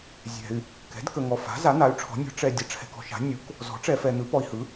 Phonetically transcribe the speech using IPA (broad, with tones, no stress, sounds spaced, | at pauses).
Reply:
zʲ ɛ̤˨ y̯ | k ɛ̤˩˥ d k ə˨ ŋ ɔ˨ f a̤˩˥ z a˩˥ n̪ a˩˥ y̯ ʈ͡ʂʰ ɔ̤˩˥ nʲ ɔ̤˩˥ ʈ͡ʂ ɛ˨ dʲ ə˩˥ ʈ͡ʂʰ ɛ̤˨ k ɔ̤˨ ʃ a̤˩˥ nʲ u˩˥ k | z ɔ̤˩˥ ʈ͡ʂ ɛ˨ f ɛ˨ n̪ ɯ˩˥ p ɔ˨ i̯ h ɯ˩˥